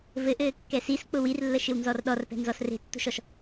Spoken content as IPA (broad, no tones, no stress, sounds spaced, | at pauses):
v ɘ ʔ ɘː kː ɛ s i s k͡p ʊ w i r lː ə ʃ ɪ w n z ɔ r ɗ ɔ r p ɛ̤ n z ɔ s r e̤ tː o̤ ʃ ɔ ʃ